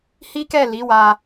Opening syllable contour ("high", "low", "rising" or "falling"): high